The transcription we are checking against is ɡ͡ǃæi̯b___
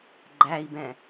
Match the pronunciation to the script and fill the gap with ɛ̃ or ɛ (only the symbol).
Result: ɛ̃